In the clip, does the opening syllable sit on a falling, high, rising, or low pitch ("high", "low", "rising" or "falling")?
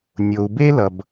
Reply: low